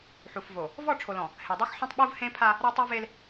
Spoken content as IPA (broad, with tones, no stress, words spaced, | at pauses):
ħu˨fvo˨ | vɔ˦˨ʈ͡ʂʰo˨lɔ̃˨ | he˨dˤa˦xħɔ̃˦tˤ ɓu˦vhẽ˦pʰa˦ | ɾa˦tˤɤ˦ve˦l